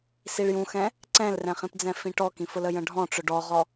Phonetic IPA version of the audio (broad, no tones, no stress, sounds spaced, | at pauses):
s i ɭ j ũ x ɛ̃ | ǀ ɛ̃ l r ɛ̃ χ ĩ p d͡z ɛ̃ f ĩ ʈ ɔ k ĩ f ʊ l ə j ə̃ ɖʱ ɔ̃ ʈ͡ʂ ʊ ɖ ɔ ʁ ɔ